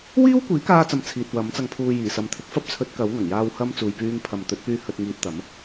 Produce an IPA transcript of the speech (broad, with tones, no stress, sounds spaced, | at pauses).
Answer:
w iː˥ w kʷ iː˨˥ k aː˧ t͡s ɐ˨ m t͡sʰ iː˨ t̚ w ɐ˨˥ m t͡s ɐ˧ ŋ pʰ uː˧ j iː˨˩ s ɐ˨ m t̪ʰ ɪ˨˥ k̚ f ɐ˥ p̚ t͡sʰ ɵ˨˥ t̚ k ɐ˨˥ w ŋ ɐ˨˩ ŋ j aː˧ w h ɐ˧ m t͡s uː˨ j p yː˧ ŋ pʰ ɐ˨ m t̪ ɵ˨˥ t̚ p yː˧ h ɵ˧ t̚ ŋ iː˧ t̚ t̪ ɐ˨˥ m